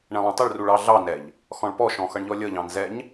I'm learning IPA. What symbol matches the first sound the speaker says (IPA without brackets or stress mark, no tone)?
ɳ